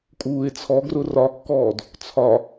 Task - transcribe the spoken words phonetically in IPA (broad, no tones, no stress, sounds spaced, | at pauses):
kʼ uː ɪ̯ t͡sʰ ɔ ɡ r ʊ r ɒ kː ɔː d | t͡sʰ ɒ